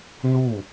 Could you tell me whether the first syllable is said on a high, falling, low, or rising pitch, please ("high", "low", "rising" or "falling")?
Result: falling